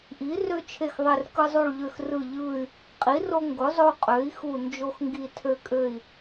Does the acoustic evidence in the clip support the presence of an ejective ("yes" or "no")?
yes